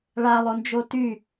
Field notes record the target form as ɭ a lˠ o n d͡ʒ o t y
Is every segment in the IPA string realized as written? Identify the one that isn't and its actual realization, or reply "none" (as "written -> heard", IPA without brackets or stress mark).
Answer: none